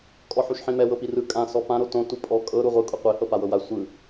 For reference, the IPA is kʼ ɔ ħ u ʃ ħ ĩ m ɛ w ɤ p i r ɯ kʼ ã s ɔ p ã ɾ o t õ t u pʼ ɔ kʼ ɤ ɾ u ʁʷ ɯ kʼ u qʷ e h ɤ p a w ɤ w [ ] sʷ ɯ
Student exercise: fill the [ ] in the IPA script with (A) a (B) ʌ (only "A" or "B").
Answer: A